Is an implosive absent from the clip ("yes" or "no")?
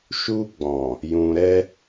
yes